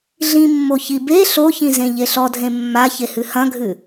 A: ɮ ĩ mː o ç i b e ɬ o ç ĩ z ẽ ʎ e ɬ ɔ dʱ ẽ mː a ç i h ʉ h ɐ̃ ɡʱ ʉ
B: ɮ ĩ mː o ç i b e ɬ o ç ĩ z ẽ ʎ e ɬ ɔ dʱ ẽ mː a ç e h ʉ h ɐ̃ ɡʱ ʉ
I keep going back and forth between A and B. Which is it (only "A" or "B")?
B